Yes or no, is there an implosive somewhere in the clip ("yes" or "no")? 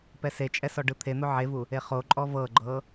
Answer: no